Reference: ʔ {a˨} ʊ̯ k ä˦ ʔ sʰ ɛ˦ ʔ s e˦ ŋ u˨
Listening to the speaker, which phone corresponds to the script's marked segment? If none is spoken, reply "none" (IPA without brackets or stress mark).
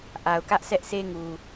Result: a˨